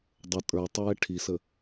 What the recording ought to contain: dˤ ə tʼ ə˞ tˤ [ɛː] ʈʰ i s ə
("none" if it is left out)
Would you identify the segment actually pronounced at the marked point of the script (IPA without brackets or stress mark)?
ɛː